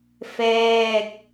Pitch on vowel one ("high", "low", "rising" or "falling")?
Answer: falling